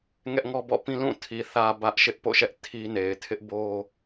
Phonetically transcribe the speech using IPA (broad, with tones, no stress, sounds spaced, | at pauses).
ŋ ɛ˦ ʔ ŋ ɔ˦ b ɔ̰˦˨ p ĩ˦ l ũ˦˨ tʰ i˨ θ ä˨ b ä˦ ʔ ʃ ɪ˦ ʔ p o̰˦˨ ʃ ɛ˦ ʔ tʰ i˦ n e˨ ɪ̯ tʰ ɪ˦ ʔ b o˦